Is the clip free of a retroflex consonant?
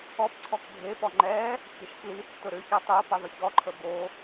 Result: yes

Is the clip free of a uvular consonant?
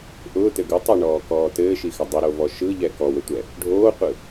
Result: no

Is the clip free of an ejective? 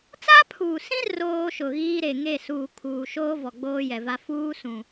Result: yes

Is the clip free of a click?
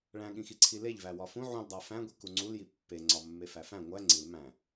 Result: no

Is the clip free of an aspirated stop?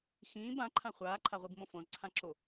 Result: no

